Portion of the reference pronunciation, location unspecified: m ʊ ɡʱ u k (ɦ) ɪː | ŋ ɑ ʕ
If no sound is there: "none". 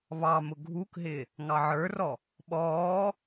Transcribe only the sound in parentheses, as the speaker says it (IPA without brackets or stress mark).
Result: ɦ